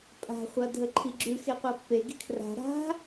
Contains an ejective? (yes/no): yes